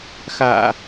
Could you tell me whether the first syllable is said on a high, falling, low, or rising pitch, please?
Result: low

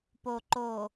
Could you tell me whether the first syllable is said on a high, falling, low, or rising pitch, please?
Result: low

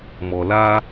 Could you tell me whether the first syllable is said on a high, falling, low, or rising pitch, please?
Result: low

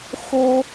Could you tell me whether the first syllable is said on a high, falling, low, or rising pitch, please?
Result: high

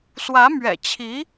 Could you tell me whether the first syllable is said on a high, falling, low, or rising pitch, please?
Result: rising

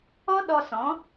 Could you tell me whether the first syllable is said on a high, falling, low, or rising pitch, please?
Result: high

